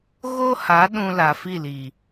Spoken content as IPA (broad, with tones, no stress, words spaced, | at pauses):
ɣo˦ha˨˦ ɗũ˧ la˨fi˦˨liː˨